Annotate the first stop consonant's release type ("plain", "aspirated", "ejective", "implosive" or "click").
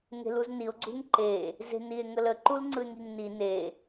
click